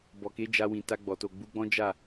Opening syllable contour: low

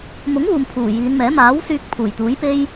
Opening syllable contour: rising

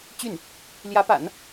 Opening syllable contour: falling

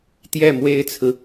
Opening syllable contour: falling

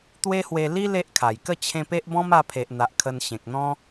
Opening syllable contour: high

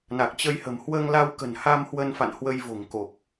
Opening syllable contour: low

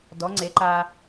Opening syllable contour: rising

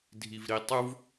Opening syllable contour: low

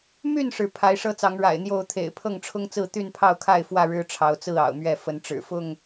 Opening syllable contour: falling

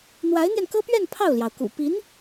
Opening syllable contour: rising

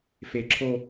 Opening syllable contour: low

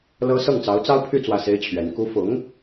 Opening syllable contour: high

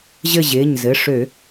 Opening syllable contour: falling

